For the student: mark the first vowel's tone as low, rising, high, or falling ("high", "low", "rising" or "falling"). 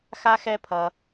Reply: high